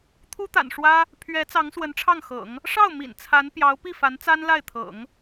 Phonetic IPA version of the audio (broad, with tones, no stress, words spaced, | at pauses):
t̪ʰu˥t̪a̰˨˩nʂwä˥ | pʰɥɛ˧˥ t͡sɑ˧˥ŋswə˧˥nʈ͡ʂʰɑ˥˩ŋxɤ̰˨˩˦ŋ | ʂɑ˥˩ʊ̯ mḭ˨˩nt͡sʰa˧˥n pjɑ˧˥ʊ̯pi˥˩fa˧˥nt͡sa˥n la˥˩ɪ̯t̪ʰɤ̰˨˩˦ŋ